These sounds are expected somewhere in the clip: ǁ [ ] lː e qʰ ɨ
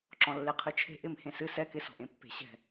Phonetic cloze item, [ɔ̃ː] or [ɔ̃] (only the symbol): ɔ̃